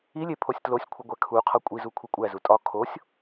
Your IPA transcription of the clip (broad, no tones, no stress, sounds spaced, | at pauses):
i lʲ e pʰ o sʲ t l o sʲ kʷʰ i ɡʷ æ kʰ u qʰ ɒ kʷʼ i z u kʷʰ i kʷʼ æ z u tʼ ɒ kʰ o sʲ